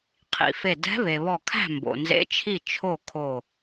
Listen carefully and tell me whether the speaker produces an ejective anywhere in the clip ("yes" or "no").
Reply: no